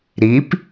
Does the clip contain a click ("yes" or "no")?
no